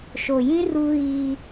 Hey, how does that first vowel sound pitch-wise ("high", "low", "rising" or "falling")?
low